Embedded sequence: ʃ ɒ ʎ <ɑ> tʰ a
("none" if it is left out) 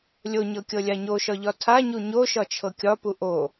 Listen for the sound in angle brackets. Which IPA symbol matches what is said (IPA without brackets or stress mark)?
ɒ